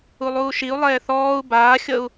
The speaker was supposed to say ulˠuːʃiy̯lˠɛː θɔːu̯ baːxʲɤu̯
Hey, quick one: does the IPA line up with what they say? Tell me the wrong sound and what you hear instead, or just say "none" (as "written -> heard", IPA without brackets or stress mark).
y̯ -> u̯